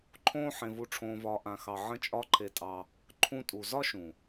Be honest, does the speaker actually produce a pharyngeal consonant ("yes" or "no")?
yes